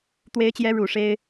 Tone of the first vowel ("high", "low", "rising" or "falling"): rising